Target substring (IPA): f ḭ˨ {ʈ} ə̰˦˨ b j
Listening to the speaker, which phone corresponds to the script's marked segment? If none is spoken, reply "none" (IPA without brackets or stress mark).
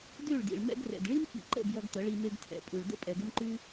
ǃ